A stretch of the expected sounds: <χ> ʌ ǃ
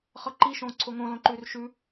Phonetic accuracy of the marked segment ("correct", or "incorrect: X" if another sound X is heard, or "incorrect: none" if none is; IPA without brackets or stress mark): correct